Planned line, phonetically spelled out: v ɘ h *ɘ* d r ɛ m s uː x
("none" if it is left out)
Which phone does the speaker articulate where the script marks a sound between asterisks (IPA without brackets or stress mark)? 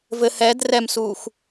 ɛ